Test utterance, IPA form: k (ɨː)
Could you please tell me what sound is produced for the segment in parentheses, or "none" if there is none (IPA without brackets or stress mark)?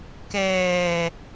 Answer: ɛː